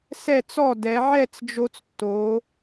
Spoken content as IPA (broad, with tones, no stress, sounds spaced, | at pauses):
s ɛ˧˩ t͡s ɔ˧˩ d ɛ˩˧ ʕ ɛ˥˧ t͡s d͡ʒ o˧ t͡s tː o˩˧